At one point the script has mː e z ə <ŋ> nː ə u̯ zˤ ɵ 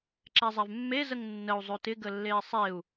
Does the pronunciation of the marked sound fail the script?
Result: no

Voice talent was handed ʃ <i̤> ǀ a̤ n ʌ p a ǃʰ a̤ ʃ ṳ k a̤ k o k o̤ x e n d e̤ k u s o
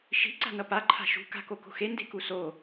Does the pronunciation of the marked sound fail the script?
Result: no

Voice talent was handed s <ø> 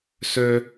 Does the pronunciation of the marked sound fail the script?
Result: no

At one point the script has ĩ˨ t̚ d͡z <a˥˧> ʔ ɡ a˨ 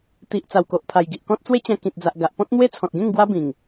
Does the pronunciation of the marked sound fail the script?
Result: yes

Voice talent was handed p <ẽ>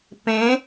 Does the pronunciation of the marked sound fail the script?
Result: no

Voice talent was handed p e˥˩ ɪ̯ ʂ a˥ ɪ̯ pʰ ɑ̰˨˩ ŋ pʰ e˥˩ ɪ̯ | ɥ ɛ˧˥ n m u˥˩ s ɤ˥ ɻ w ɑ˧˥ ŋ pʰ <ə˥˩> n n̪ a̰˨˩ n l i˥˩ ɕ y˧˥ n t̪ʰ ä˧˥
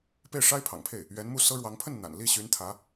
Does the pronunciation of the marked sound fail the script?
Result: no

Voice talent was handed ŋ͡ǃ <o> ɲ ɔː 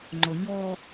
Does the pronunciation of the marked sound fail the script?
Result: no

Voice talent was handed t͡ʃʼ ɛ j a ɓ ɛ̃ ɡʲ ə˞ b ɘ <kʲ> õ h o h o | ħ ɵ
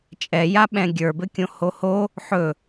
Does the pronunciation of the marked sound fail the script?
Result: no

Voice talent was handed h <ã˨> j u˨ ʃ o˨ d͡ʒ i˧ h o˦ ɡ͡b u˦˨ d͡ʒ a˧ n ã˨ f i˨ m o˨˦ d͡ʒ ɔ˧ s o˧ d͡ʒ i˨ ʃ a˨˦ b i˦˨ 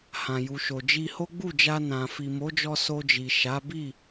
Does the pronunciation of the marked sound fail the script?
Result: no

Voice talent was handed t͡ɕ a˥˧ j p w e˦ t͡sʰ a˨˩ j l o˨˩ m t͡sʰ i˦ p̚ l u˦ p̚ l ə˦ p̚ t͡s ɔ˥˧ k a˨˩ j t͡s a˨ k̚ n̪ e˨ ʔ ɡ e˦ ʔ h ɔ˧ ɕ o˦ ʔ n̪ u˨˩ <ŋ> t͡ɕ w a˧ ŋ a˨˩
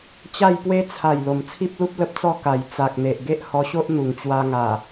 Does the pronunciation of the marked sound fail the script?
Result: no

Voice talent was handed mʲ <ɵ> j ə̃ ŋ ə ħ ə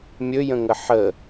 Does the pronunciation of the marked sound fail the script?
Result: no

